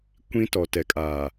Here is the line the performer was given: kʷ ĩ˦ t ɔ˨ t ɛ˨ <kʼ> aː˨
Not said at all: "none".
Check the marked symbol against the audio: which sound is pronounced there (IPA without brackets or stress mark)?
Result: kʼ